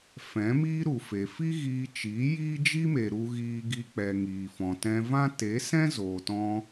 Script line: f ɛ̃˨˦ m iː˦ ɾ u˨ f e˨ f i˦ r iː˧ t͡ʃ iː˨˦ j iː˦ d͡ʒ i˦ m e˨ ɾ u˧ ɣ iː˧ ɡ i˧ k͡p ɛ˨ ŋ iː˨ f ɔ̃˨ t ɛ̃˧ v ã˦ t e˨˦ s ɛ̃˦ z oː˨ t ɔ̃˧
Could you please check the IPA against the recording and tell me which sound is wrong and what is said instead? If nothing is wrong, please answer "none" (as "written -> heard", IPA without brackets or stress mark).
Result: r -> ɣ